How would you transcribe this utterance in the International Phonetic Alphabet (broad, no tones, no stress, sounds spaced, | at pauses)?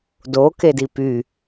d o k e d i p y